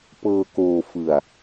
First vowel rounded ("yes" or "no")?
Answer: no